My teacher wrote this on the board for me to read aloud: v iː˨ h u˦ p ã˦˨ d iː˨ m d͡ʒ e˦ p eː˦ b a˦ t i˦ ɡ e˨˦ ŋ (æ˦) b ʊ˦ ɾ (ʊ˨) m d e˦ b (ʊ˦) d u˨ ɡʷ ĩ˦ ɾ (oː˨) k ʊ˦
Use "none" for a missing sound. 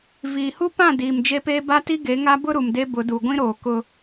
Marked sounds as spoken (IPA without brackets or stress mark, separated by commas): a˦, u˨, ʊ˨˦, oː˨